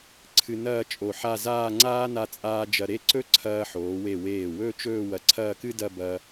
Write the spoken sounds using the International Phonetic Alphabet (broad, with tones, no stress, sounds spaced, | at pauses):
ǀʰ ɨ˧ n ɐː˥˧ t͡ʃʼ o˧˩ ħ a˥˧ z aː˥˧ ŋ͡ǀ aː˥ n a˧ t͡sʼ aː˧ d͡ʒ ɐ˧ ɾ e˥˧ ǀ ɵ˥ ǀʰ ɐː˧ ħ oː˩˧ w e˧˩ w eː˧˩ w ɵ˥˧ t͡ʃ ɵː˥˧ w ɐ˧˩ ǀʰ ɐː˥˧ k ɨ˥ d ɐ˥˧ b ɐː˧